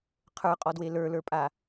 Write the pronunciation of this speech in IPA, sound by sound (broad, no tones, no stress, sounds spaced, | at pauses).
qʰ ə˞ qʼ ɔ d w e l ə˞ l ə˞ pʼ a